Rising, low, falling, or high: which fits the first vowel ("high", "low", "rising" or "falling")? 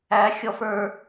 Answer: rising